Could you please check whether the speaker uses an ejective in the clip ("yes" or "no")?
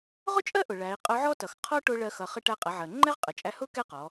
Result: yes